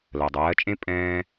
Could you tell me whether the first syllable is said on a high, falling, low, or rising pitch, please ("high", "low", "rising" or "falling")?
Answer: low